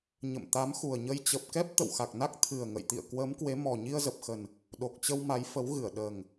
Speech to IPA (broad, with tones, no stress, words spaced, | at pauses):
ɲə̰˧˨mt̪a˨˦mxu˨˩ə̯ɲə˧j t͡ɕə˨˩p̚kɛ˦˥p̚ t̪ə̰˧˨wxa˨˩k̚na˦˥k̚ t̪ʰɨ˨˩ə̯ ŋə̰˧˨jt̪ḭ˧˨ə̯ kwəː˨˦m kwe˨˦mɔ˨˩ ɲi˧ə̯zə˨˩p̚xə˨˩n | ɗo˨˩k̚t͡ɕə˧w ma˨˦jfə˨˦w ɣɨ˧˩ə̯ɗəː˨˩ŋ